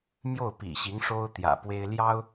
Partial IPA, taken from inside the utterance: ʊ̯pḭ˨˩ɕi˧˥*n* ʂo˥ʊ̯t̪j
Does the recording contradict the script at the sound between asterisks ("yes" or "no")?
yes